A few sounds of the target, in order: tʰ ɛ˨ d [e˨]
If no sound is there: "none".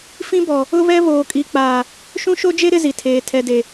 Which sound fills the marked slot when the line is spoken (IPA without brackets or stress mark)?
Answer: e˨